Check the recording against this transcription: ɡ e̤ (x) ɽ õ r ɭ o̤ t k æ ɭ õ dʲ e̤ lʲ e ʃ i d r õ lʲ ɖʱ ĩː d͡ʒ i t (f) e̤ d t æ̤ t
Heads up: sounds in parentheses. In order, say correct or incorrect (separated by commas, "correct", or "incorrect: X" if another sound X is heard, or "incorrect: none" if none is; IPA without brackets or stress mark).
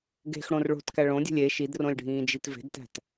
correct, incorrect: v